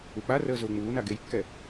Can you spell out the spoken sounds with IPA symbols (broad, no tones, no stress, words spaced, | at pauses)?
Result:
uk͡parəː zʊːŋ͡muːna ɡejkːɛ